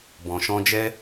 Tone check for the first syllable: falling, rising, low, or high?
low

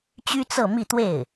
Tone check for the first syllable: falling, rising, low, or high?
high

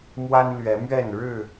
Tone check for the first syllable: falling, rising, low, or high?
high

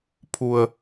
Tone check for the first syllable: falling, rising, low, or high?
low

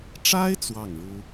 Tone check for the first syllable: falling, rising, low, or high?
high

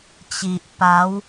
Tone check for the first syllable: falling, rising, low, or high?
low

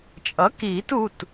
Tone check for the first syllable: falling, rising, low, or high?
rising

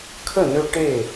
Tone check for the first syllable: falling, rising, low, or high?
falling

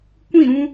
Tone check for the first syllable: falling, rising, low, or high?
falling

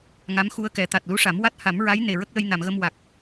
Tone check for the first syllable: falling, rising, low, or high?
rising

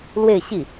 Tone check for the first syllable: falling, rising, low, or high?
falling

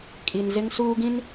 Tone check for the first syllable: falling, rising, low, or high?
low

